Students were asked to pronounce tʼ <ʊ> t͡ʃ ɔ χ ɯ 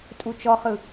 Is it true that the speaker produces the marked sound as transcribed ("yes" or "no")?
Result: no